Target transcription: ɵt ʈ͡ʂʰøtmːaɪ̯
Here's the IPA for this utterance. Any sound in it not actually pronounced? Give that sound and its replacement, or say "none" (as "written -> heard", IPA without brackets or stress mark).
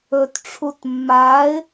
ø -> u